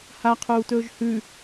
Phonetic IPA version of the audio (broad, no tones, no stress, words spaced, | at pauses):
haqʰuːtɵːʒ hʉ